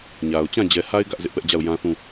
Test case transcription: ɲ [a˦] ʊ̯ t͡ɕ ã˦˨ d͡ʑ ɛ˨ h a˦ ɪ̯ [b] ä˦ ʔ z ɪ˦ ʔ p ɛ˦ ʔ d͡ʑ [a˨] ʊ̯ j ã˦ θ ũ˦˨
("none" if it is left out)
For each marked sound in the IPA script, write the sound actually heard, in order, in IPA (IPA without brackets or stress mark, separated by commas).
a˨, ɡ, a˦˨